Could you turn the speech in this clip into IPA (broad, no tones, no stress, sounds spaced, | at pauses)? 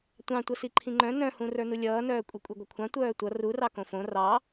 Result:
tʷ ɑ̃ tʷ ʌ s i ǃʰ ĩ ŋ͡ǃ œ̃ n œ̃ h ũ r ə˞ n u lʲ ʌː n œː kʷʼ i kʷʼ i ɡʷ ʌ kʷʰ ɑ̃ tʷ œː tʷ ʌ r u r ɑ k õ f õ r ɑ